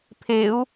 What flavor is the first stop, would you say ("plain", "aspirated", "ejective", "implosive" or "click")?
aspirated